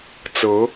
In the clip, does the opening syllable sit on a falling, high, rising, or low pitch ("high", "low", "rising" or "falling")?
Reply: rising